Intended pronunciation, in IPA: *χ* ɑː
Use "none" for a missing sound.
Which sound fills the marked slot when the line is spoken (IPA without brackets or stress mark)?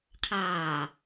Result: qʰ